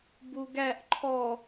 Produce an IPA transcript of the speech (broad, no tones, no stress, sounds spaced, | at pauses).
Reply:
b u ɡ æ ʔ ǃʰ ɔ